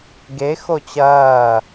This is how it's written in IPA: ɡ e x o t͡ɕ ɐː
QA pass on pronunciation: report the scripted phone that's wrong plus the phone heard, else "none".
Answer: none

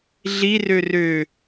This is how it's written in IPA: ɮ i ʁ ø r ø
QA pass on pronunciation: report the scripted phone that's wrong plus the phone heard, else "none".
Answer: ʁ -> r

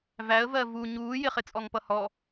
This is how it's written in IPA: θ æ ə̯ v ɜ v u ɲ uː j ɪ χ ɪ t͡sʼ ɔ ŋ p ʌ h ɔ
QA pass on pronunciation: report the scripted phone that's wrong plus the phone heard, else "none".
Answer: θ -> v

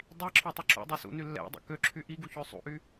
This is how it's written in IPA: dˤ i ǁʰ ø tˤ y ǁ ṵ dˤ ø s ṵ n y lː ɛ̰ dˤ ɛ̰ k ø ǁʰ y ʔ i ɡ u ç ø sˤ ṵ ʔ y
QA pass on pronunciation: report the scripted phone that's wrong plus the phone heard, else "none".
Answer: none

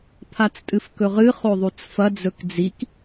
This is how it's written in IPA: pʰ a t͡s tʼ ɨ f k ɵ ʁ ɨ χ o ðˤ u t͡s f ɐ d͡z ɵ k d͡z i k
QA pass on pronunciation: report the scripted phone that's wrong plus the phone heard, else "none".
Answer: none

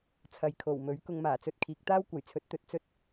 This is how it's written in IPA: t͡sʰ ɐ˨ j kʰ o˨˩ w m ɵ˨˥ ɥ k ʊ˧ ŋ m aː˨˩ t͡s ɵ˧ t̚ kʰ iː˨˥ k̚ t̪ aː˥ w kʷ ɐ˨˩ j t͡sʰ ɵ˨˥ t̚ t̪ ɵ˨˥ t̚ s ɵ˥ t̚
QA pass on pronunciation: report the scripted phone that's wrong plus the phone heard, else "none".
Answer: s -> t͡s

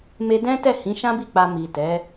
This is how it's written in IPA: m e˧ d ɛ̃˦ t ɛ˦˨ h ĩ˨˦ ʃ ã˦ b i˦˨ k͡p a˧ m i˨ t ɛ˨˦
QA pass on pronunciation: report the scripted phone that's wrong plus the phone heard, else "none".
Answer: none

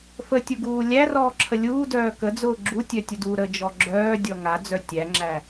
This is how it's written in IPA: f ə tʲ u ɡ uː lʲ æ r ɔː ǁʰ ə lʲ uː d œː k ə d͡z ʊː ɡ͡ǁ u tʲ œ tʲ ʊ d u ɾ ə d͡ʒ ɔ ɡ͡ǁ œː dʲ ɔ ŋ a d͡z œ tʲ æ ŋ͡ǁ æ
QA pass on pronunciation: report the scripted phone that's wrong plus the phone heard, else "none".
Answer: none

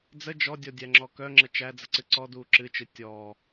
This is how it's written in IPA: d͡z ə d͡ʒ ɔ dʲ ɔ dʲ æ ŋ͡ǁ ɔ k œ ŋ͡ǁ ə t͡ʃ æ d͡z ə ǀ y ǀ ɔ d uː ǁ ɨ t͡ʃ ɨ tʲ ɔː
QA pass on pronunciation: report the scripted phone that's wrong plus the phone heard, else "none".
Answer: y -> ɨ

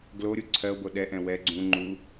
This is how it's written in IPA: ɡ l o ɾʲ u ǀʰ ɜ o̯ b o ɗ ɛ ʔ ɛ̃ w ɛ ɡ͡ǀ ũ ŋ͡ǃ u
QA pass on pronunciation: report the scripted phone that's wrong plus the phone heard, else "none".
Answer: none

